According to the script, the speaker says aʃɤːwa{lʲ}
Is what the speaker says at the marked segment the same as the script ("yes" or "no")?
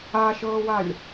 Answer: yes